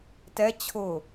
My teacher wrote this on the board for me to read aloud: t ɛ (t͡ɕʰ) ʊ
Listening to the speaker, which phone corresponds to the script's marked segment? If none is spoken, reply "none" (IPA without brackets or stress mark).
t͡ɕʰ